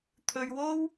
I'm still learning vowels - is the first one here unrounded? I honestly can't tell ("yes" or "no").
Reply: no